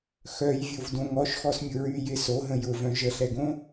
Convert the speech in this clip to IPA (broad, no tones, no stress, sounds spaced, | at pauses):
x œ j vʲ o v d õ ŋ ɔ ʃ x ɔ s mʲ ʊ ɹ y j ɪ s o ɦ ə̃ j ʊ v œ̃ ʒ ə ɬ ɛ ɡ õ